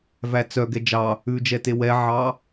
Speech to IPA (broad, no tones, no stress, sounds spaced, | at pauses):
v æ t͡s œ ɡ ɛ d͡ʒ ɑ | ʉ d͡ʒ ɛ t e w ɛ ʕ ɑ